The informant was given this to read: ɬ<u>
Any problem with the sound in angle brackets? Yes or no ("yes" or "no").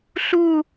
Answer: no